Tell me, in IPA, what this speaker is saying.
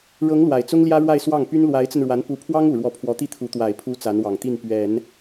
ɻ ɤ˧˥ ŋ l w a˨˩ ɪ̯ t͡s ʊ˥ ŋ l j ä˥ ɻ w a˥˧ ɪ̯ s w ɑ˥˩ ŋ p y˥ n l w a˧˥ ɪ̯ t͡s ə˧ n ɻ w a˧˥ n p u˧˥ pʰ w ɑ˥ ŋ u˨˩ ɻ w ɔ˧˥ pʰ w ɔ˧˥ t̪ i˥˩ t̪ʰ u˧˥ t̪ w a˨˩ ɪ̯ pʰ u˧˥ t͡s a˧˥ n w ɑ˨˩ ŋ t̪ i˥˩ n p ɥ ɛ˨˩˦ n

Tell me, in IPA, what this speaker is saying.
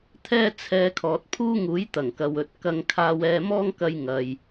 t̪ʰ ɛː˥ t͡sʰ ɛː˧ kʰ ɔː˨ t̚ pʰ uː˥ ŋ uː˨˥ j t̪ ɐ˨˩ ŋ k ɐ˨ w ɵ˨ t̚ k ɐ˧ ŋ kʰ aː˧ w ɛː˧ m ɔː˥ ŋ k ɐ˧ j ŋ ɐ˨ j

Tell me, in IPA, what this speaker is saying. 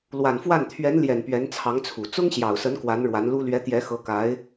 l w a˨˩ n f w a˥˩ n t̪ʰ ɥ ɛ˧˥ n l j ɛ˨˩ n p ɥ ɛ˧˥ n t͡sʰ ɑ˧˥ ŋ t͡sʰ u˨˩ t͡s ʊ˥ ŋ ɕ j ɑ˨˩ ʊ̯ s ə˧˥ n k w a˧˥ n ɻ w a˧˥ n l u˥ l ɥ ɛ˧˥ t̪ j ɛ˧˥ x ɤ˧˥ k a˧˥ ɪ̯

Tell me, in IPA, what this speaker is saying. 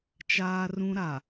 t͡ʃ aː˦ r ũ˦ ɾ a˨

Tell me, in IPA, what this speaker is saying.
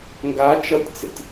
ŋ ɡ a t͡ʃ ʌ tʲ t͡s ḛ tʲ

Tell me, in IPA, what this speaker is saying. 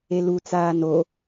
e l u t͡s aː n o

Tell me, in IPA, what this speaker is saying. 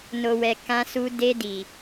n o˨ w ɛ˨ k ã˧ s u˧ d e˧ d i˨

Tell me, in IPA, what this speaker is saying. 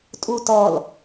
tʼ u t ɔ l

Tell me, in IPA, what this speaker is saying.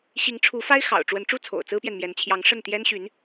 ɕ i˧˥ ŋ ʈ͡ʂʰ u˧˥ f a˥ ɪ̯ x ɑ̰˨˩ ʊ̯ ʈ͡ʂ w ə˧˥ n ʈ͡ʂ u˥ t͡sʰ o̰˨˩ ʊ̯ t͡s ɹ̩˥ p j ɛ˨ n m j ɛ˧˥ n t͡ɕʰ j ɑ˧˥ ŋ ʂ ə˥˩ n t̪ j ɛ˥ n ɕ y˧˥ n

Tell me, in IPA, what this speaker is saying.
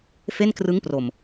f e˥˩ n k r ɯ˦˥ ŋ p r o˨˩ m

